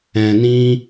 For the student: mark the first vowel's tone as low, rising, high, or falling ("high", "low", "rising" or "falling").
low